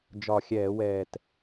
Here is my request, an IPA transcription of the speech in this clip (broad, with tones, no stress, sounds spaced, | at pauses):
d͡ʒ ɒ˨˩ xʲ ɛː˧˩˧ w ɛː˨˩ t